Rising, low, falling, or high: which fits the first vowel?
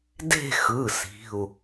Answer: falling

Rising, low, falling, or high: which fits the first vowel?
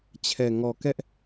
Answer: low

